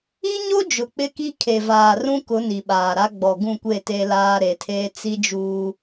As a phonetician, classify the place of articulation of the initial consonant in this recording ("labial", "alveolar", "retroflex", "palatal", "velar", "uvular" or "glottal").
palatal